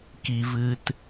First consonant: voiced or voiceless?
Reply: voiceless